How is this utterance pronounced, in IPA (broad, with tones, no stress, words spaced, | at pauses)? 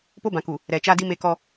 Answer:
po˦bã˨ku˨ | ɾɛ˨t͡ʃa˦di˦ me˦kɔ˦